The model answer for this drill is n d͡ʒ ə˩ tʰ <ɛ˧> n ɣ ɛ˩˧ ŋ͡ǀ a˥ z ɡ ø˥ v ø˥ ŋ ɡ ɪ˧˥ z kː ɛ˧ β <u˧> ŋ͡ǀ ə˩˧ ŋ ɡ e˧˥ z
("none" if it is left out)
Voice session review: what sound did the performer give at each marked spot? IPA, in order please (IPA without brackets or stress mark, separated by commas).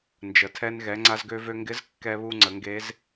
ɛ˧, u˧